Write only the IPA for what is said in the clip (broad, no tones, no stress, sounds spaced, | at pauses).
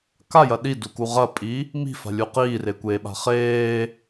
k a j ɐ ɗ i d u k u ʁ ɐ pʼ i | m i̤ f a̤ lʲ u q iː r e kʷ eː ɓ a̤ χ eː